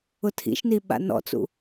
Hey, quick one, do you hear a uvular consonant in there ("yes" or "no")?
no